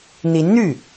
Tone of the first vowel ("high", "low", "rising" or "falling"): rising